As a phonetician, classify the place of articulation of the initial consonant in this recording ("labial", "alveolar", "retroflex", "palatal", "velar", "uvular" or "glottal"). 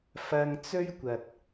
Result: labial